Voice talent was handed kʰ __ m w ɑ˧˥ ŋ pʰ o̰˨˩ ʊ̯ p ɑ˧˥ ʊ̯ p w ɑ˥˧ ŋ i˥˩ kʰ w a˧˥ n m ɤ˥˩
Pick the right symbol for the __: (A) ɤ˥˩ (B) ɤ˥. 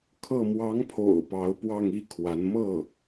A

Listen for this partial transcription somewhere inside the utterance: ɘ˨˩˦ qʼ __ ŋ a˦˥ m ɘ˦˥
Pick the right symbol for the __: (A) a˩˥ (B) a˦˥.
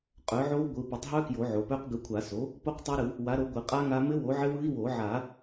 B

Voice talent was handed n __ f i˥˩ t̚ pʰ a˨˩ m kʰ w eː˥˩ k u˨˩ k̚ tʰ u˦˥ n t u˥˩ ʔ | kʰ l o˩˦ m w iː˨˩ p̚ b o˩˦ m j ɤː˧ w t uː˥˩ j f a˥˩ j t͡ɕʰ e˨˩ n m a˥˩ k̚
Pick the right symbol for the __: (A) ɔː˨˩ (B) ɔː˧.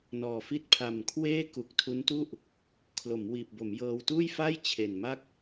A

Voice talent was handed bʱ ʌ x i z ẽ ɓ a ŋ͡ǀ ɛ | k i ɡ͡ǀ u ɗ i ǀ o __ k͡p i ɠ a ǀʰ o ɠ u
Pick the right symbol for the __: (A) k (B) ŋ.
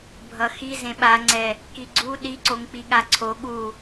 B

